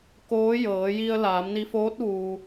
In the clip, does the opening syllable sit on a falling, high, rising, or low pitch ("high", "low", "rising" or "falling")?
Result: rising